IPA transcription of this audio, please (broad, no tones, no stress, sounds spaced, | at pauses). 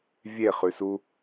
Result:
vʲ e χ ʉ s u